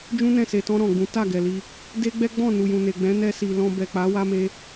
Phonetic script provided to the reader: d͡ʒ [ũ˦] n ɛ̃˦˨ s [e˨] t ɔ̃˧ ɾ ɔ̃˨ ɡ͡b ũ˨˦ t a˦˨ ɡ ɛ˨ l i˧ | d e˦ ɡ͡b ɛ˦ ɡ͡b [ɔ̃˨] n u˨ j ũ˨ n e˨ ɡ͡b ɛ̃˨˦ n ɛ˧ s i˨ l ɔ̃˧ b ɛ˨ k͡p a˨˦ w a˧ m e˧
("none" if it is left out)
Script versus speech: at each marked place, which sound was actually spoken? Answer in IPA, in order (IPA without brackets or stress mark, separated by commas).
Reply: ũ˦, e˨, ɔ̃˦˨